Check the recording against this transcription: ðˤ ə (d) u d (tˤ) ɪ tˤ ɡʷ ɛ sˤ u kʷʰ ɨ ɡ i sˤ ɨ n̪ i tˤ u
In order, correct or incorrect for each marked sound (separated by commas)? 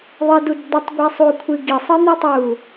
correct, incorrect